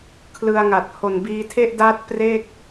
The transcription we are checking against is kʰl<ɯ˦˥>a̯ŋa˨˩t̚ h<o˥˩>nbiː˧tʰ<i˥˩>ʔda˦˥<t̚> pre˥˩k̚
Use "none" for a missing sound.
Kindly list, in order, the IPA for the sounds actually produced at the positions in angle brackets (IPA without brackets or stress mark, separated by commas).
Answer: ɯ˧, o˨˩, e˥˩, t̚